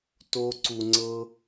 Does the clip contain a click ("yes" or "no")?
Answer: yes